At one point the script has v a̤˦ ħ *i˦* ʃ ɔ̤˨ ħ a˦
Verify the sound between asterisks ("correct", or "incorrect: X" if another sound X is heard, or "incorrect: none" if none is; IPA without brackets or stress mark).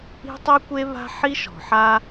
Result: correct